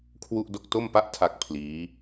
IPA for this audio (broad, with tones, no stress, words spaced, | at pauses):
kʰwu˥˩ʔ do˥˩k̚ to˥˩mpa˥˩ʔ tʰa˦˥k̚ pʰliː˦˥